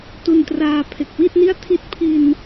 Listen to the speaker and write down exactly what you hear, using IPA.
tu˧n traː˧pʰe˨˩k̚wi˥˩t̚ni˥˩a̯ tʰi˦˥t̚pʰi˧n

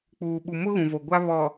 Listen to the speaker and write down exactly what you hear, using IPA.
k͡puː˨ɓu˨ mʊ˦ɣũ˨vo˨ ɡʷa˦βɔ˨

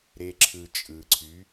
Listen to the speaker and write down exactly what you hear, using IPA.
ɾe˦ǁʰɯ˧ t͡ʃʼɯ˨ǀʰy˨˦

